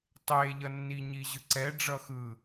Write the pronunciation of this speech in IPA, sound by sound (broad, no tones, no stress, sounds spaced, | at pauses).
tˤ e ʎ ʌ nː i ɲ i ʑ ɯ ǀ ɛ ɖ͡ʐ ʌ x ɯ